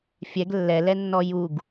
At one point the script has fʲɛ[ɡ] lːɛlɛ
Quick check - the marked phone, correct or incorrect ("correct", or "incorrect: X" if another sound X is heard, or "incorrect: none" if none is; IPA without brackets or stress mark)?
correct